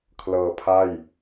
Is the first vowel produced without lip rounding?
yes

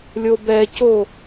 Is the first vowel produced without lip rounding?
no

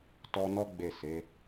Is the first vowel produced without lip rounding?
no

